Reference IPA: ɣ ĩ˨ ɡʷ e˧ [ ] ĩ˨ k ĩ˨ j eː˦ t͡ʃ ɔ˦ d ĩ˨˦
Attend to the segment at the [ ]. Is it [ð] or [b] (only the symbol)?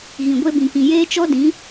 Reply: b